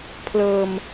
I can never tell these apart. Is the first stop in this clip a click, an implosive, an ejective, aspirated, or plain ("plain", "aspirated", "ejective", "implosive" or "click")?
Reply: aspirated